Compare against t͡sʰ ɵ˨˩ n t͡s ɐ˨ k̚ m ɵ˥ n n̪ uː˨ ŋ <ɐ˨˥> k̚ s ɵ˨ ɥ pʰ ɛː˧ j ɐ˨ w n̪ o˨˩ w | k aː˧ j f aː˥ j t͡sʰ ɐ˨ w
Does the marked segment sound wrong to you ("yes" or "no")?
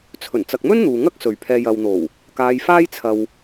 yes